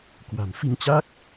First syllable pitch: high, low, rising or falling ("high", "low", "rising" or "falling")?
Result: low